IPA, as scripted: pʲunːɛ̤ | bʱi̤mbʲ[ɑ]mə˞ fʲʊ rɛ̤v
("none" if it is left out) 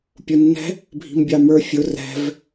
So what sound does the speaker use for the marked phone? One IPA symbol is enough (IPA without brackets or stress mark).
ɑ